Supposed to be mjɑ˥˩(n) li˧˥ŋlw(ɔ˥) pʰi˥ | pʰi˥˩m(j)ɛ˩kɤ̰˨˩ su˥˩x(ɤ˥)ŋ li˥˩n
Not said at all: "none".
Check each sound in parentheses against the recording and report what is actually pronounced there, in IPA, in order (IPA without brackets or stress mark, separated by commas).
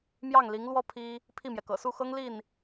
ŋ, ɔ˥, j, ɤ˥